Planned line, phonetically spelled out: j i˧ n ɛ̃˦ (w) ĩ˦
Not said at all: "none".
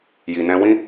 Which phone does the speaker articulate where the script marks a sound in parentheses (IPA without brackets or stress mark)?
w